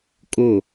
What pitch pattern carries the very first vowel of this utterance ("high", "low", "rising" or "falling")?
falling